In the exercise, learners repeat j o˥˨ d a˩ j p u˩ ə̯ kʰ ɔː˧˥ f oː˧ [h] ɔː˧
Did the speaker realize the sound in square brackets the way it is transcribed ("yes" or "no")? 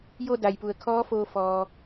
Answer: no